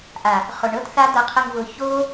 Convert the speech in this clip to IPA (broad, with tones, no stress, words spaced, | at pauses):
ʔa˨ | χʊ˨ɳɤ˦tθa˦ d̪ɤ˧qʰə˧ŋvʊ˧ ço˦